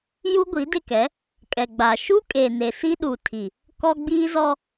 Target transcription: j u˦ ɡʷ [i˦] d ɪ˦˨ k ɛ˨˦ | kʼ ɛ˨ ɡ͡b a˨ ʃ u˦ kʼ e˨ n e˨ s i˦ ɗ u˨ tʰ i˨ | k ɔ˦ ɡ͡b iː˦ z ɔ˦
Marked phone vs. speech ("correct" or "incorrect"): incorrect